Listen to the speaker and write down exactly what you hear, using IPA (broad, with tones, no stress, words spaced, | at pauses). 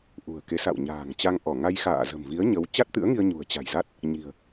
ʔṳ˨˩ə̯ke˨˦sa̰˧˨wɲa̤ː˨˩ŋ t͡ɕa˧ŋʔɔ˧˩ ŋa˧jxa̰ː˧˨zə̤˨˩mvi˨˦ə̯ ɲə˨˦w t͡ɕa˦˥t̚t̪ɨ̰˧˥ə̯ŋi˧ə̯ ɲṳ˨˩ə̯t͡ɕa̤˨˩jza˦˥t̚ | ɲi̤˨˩ə̯